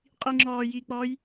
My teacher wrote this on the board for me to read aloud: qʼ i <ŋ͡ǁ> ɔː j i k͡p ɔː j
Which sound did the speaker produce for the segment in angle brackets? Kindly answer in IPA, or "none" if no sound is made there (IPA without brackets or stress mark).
ŋ͡ǁ